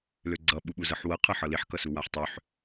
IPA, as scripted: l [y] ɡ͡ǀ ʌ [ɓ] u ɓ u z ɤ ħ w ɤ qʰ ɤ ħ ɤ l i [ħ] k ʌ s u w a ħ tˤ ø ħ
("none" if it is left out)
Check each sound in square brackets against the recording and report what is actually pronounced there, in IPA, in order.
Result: ø, ɓ, ħ

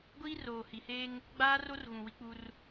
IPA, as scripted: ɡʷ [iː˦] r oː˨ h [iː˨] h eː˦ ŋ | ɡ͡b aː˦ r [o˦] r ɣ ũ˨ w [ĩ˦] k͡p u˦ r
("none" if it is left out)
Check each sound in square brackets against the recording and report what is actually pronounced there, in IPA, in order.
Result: iː˦, i˨, o˦, i˦

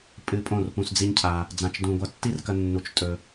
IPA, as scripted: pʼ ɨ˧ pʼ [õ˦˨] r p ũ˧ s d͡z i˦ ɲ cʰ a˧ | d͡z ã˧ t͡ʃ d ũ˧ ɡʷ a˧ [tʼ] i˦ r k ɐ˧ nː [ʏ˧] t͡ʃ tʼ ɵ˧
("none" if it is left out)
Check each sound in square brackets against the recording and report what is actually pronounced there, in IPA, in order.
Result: õ˦˨, tː, u˧

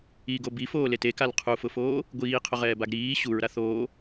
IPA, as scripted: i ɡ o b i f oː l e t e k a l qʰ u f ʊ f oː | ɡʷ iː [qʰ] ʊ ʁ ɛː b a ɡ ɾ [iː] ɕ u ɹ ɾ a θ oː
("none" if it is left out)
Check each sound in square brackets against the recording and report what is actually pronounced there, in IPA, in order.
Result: qʰ, iː

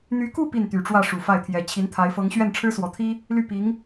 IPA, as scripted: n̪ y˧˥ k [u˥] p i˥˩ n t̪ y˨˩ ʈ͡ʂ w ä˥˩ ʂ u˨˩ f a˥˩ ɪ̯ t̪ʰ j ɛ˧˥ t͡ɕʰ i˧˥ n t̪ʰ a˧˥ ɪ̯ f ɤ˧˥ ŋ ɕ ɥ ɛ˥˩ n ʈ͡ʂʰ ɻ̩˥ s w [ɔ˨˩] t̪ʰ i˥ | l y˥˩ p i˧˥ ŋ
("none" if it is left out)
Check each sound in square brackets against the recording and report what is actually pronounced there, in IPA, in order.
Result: u˥˧, ɔ˨˩

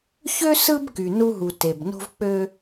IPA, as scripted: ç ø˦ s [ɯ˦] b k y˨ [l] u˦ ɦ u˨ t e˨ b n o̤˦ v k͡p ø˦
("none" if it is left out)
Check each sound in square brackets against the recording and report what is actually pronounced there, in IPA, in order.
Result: ɯ˦, n

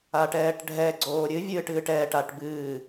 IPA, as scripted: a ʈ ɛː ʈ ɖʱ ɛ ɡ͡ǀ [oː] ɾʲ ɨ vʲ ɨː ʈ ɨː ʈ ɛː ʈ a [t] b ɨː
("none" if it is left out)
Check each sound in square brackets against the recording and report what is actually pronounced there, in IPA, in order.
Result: oː, ʈ

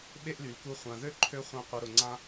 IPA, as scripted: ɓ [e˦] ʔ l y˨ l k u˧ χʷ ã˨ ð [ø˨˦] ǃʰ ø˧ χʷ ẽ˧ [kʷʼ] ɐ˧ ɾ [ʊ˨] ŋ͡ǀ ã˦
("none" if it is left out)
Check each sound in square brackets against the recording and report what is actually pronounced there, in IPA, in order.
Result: e˦, ø˦, qʷ, ʊ˨

